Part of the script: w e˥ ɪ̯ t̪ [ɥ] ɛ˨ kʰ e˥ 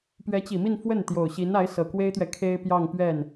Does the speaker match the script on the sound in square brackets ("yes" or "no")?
yes